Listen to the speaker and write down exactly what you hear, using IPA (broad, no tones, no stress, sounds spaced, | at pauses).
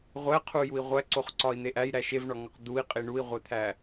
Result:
ʁʷ æ qʰ u j u i̯ ʁʷ æ ǀ o χ ǀ ɒ i̯ n̪ e ʔ æ j ɾ æ ʃ e v ɳ ɒ ŋ ɒ q d̪ u i̯ qʼ i ɳ u i̯ ʁʷ e t̪ʰ æ